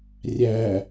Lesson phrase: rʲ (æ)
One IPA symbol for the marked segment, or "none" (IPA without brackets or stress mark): æ